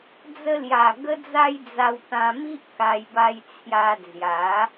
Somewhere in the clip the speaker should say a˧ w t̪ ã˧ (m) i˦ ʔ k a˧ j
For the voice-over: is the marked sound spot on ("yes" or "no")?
yes